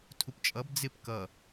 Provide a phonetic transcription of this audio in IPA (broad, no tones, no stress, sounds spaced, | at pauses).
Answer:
tʰ u p t͡ʃʼ ʌ b d͡z ɪ p k ʌ